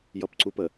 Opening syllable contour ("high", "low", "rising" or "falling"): high